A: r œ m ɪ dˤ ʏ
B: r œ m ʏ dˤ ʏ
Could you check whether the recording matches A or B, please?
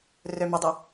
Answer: A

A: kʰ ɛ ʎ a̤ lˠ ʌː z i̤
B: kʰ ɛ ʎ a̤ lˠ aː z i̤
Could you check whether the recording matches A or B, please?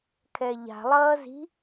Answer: A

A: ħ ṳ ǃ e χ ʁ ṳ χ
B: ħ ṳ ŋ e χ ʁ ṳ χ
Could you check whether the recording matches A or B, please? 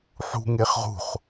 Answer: B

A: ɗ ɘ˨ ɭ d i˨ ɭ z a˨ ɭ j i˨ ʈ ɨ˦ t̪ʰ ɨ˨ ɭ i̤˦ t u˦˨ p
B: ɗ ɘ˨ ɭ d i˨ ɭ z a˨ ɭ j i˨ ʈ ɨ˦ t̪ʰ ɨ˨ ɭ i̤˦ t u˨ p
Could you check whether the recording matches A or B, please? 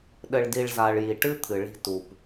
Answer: B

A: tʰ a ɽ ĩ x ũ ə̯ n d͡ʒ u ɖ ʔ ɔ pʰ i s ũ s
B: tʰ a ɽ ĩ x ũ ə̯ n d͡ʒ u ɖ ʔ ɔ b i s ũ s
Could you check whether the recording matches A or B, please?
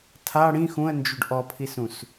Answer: A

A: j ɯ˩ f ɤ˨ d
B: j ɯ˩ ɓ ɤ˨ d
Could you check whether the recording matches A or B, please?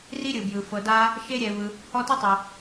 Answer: A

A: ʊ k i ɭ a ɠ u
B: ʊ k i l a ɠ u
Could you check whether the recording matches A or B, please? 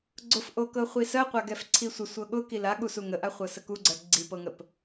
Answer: B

